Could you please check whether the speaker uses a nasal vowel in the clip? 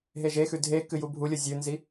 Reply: no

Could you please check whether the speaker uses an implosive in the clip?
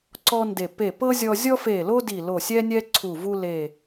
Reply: no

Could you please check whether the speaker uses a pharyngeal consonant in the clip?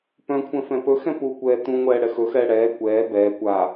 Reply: no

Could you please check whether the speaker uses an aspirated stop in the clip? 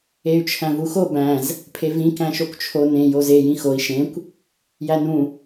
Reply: yes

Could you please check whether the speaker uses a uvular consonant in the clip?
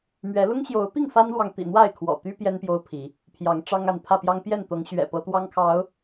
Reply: no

